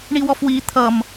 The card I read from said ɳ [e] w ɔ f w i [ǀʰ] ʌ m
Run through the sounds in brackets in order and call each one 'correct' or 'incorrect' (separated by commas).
incorrect, incorrect